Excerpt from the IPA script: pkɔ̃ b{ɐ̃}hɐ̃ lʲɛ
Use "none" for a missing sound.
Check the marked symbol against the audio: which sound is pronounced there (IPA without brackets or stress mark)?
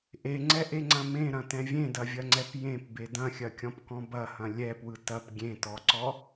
ɐ